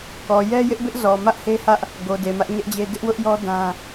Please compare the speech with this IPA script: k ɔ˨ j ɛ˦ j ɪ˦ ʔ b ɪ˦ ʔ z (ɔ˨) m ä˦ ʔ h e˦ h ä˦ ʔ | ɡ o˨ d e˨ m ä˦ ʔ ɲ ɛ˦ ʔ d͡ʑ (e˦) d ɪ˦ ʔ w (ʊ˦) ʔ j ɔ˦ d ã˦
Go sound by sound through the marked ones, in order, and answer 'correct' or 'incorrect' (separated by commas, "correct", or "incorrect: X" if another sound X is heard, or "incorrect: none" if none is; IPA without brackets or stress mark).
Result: correct, correct, correct